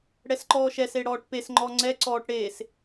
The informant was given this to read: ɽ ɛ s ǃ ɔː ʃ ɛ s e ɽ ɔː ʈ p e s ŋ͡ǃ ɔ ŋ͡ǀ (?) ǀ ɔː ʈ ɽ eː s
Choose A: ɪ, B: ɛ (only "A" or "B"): B